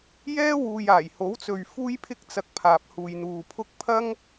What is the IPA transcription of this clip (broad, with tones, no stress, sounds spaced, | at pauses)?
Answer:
j ɛː˥ w uː˨ j aː˨˩ j h o˨˥ w t͡s ɵ˨ ɥ f uː˥ j pʰ ɪ˥ k̚ t͡s ɐ˧ k̚ pʰ aː˨ p̚ h uː˨ j n̪ uː˨ pʰ ʊ˥ k̚ pʰ ɐ˥ ŋ